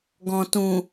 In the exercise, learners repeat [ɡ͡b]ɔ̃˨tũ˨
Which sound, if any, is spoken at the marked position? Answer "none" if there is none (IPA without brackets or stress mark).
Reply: ɡ